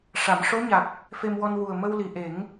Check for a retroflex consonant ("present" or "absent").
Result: present